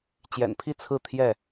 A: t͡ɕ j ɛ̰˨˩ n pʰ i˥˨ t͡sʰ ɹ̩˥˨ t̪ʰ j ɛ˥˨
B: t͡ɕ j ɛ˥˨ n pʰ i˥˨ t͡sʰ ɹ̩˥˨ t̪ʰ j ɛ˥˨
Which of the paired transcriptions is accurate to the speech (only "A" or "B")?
A